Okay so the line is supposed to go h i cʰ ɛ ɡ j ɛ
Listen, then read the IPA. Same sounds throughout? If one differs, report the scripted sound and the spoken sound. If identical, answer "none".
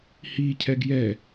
none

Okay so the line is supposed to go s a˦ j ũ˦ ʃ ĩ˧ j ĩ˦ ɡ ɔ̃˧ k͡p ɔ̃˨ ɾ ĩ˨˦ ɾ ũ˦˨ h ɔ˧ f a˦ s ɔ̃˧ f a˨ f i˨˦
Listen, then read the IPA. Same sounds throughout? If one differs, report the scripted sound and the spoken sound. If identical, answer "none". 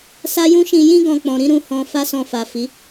ɔ˧ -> ɔ̃˧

